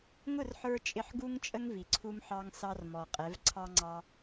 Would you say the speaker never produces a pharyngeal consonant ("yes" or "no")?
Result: no